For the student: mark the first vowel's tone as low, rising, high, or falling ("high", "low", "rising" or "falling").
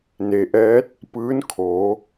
low